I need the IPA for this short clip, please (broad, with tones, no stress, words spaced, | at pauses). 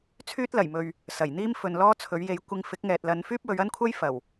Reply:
t͡sʰyː˥t̚lɐ˨˩jmɵ˨ɥ | sɐ˨˩jn̪iː˥m fɵ˨n lɔː˥t͡sʰɵ˨˥ɥ je˨˧j kʷɪ˧ŋ fɪ˨˥k̚ŋɛː˨t̚lɐ˨˧n fyː˥p̚wɵ˨˧ɥɐ˥nkʷʰɐ˥j fɐ˨˩w